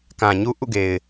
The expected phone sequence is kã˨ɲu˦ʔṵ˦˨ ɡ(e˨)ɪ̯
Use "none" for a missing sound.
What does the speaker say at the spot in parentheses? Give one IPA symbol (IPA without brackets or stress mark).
e˨